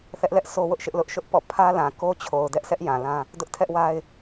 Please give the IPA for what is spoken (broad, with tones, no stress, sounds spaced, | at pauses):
θ ɛ˦ ʔ l ɛ˦ ʔ sʰ o˦ w ʊ˦ ʔ ʃ ɪ˦ ʔ l ʊ˦ ʔ ʃ ʊ˦ ʔ p ɔ̰˦˨ pʰ ä˦ l ã˨ k o˦ t͡ɕʰ o˨ ʊ̯ d ɛ˦ ʔ sʰ ɛ˦ ʔ j ã˨ l ã˦ | d ʊ˦ ʔ tʰ ɛ˦ ʔ w a˦ ɪ̯